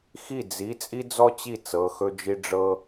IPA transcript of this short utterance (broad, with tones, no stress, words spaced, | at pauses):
xi˥˩ d͡zi˩˧˩ t͡sʼi˥d͡zɔ˥t͡ɕi˥˩ t͡sɤ˩˧˩xɵ˥d͡ʒi˥ ɖ͡ʐɤ˥